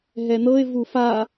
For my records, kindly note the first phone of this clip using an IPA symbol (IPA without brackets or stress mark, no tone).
ɦ